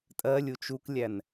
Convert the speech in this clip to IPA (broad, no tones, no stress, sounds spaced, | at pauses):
tʼ ɜ lʲ u t͡ʃ u k lʲ æ n